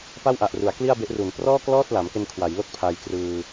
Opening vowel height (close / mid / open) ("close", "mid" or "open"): open